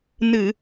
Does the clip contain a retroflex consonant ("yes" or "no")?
no